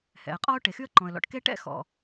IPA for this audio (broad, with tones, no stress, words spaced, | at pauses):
hɛ̰˩ə̯qʼɔ˥ʊ̯ ʈe˩xy˥ə̯ǃɔ̃˩ə̯lɔ̰˩ʈ ke˥ ʈɛ̰˥ xɔ̰˩